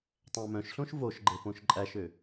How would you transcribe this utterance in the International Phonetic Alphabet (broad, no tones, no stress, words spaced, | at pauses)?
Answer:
tˤæ̃mœ̃ʃɬõʃ voʃɡ͡ǃe põʃǃʼæʃø